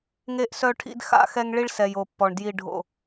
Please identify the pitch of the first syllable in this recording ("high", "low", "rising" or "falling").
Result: falling